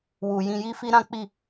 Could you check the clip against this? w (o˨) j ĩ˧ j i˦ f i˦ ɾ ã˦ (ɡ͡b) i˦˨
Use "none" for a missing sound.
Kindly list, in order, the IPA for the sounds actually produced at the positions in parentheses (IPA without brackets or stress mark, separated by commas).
u˨, k͡p